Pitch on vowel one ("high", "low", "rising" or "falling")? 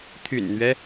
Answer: low